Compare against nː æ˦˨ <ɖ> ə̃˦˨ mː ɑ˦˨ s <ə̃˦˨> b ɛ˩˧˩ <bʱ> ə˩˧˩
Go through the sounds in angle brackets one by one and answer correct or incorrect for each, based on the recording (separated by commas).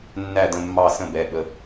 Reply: incorrect, correct, incorrect